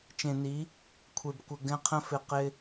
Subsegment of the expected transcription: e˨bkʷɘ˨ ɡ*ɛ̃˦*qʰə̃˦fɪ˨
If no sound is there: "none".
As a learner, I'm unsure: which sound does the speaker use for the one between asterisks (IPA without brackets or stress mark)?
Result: ɛ̃˦